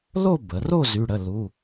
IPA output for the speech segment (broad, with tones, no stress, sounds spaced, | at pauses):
l o˥˧ b ə˩˧ r o˥˧ z y˧˥˧ ɽ ə˧˥˧ l u˧˥˧